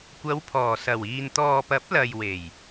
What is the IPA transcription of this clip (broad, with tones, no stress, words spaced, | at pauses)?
kʷɐ˨˧wpʰɔː˨˩sɐ˨˩wiː˨n t̪ɔː˨pɐ˨˥p̚ lɐ˨jwe˨˩j